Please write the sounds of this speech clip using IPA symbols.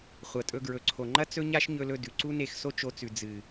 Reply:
χʷ ɐ˧ tʼ ɵ˦ ɡ ɹ ɵ˨ ǀʰ o˨ ŋ͡ǃ ɐ˦ t͡s ɵ˦ ɲ a˦ ʃ ɲ ɵ˧ l ɵ˧ d ʉ˨ ǀ u˦ n e˦˨ x s o˦ t͡ʃ o˧ t͡s ʉ˨ d͡z ɨ˨

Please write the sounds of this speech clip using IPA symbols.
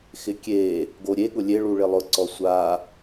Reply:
x ɪ kʲ e | ɡ o ɾʲ e ɠ ʊ lʲ e ɭ u ɭ ɪ lˠ ʊ ǀ ɔ sʷ a

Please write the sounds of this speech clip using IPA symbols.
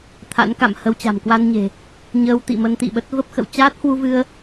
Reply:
t̪ʰ a̰˧˥ n k a̰˧˨ m h ə˧ w t͡ɕ a̤˨˩ m k w a˧ n ɲ e̤˨˩ | ɲ əː˧ w t̪ ḭ˧˨ m ə˧ n t̪ ḭ˧˨ ɓ ə˦˥ t̚ v ə˦˥ p̚ x ə̰˧˨ w t͡ɕ aː˦˥ t̚ h w u˧ v ɨ˧ ə̯

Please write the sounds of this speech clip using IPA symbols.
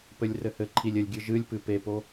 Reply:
p ɘ lʲ r ɘ h ɘ ǃʰ i lʲ ɘ lʲ ɡʲ ɨ ʒ ɨ lʲ p ɨ p e p o

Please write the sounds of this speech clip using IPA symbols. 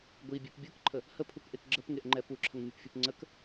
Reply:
ɡʷ i bʲ e p bʲ ɯ k ǃʰ ə | h ə pʰ u k ʔ e k ɡ͡ǁ ə p ŋ e ʔ ŋ͡ǃ ɛ p u ǁʰ ə ŋ mʲ u p fʲ u p ŋ͡ǀ ə k

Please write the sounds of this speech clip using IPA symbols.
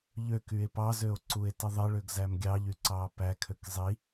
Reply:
ʎ ø k y e̯ p ɑ z ø o̯ ǀ u e̯ t ɯ ðˤ e ɭ ø ɡ z æ m ɡʲ ɑ ʎ y ǀ ɑː p æ kʰ ø k zˤ i

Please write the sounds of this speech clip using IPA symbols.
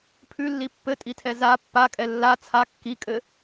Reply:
pʰ ʉ lː i pː ɘ tʼ i tʰ ɛ z a pː a kʼ ɛ lː a t͡sʰ a kː i kʼ ɘ

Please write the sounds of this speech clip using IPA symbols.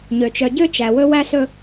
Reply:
ɲ ø˨ t͡ʃ œ˨ ɟ ø˦ t͡ʃ æ˨ w ɵ˦ w æ˦ s ɵ˦

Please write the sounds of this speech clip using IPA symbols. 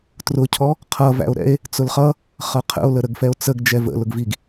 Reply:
t r ʊ cʰ ɔ | qʰ ʌ v æ̰ o̯ ɾ ɛ̰ e̯ | t͡s ʊ l χ ʌ | χ ʌ qʰ ə̰ o̯ l ə ɾ ə ɡ f ɛ o̯ t͡s ə ɡ d͡ʒ ɛ v ə̰ l ʊ ɡ v i ɡ

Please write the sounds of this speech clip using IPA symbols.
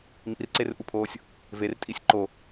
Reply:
m ḭ r ǀ e r ʔ u pʰ oː sʲ | v e r tʼ i sʲ ǃ o

